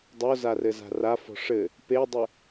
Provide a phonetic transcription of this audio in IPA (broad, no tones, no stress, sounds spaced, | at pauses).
dˤ o z a r ɘ z a̤ r a f ɔ̤ ʂ ɘ | p e dˤ ɨ